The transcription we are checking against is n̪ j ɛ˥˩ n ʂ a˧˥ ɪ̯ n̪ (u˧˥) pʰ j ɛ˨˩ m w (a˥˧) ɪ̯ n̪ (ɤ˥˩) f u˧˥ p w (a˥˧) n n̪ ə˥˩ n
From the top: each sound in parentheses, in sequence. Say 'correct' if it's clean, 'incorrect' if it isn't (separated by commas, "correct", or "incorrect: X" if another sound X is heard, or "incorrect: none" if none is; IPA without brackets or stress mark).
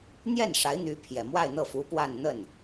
incorrect: y˧˥, correct, correct, correct